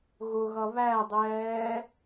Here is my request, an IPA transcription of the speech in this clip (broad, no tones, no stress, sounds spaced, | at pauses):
ɣ ʊ ɣ ʌ β æ dˤ ɛː